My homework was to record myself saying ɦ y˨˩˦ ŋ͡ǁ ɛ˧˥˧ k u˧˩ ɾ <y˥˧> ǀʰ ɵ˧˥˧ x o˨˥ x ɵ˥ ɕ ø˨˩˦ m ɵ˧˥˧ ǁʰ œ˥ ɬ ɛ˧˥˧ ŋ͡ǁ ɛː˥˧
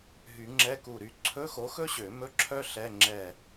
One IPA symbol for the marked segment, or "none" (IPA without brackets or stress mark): y˥˧